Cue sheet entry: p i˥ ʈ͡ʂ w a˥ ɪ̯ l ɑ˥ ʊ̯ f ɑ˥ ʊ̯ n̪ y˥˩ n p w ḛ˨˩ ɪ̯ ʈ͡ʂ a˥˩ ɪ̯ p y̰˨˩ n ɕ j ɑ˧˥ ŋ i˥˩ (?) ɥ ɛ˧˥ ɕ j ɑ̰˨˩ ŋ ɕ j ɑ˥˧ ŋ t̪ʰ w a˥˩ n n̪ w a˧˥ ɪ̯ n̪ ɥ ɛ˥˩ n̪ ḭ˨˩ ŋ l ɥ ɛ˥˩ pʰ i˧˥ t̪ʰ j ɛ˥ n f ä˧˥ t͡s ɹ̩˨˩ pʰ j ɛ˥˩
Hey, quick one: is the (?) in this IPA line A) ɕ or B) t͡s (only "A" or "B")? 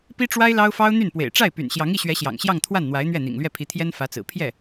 A